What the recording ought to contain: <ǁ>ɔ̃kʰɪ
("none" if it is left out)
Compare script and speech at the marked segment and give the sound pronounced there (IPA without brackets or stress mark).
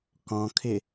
k